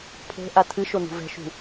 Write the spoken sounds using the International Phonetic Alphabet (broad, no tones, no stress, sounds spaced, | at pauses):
pʰ o̤ ʔ a tʰ ɨ ʃ o n ṳ v ɛ̤ ʃ ṳ